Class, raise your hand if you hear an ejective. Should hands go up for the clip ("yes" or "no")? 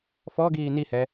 no